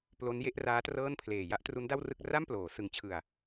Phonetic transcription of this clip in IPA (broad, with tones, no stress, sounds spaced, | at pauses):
p l o˦˥ n j e˥˩ ʔ r aː˦˥ t r ɤː˥˩ n pʰ l eː˨˩ j a˥˩ ʔ t r u˦˥ n d a˥˩ w r ɯ˥˩ k̚ r a˥˩ m p l oː˩˦ s ɯ˩˦ ŋ t͡ɕʰ ɯ˨˩ a̯